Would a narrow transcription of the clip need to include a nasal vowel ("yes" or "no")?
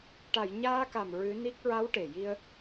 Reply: no